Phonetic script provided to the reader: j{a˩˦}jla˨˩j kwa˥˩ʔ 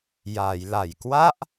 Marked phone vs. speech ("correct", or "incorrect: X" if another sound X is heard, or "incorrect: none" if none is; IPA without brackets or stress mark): correct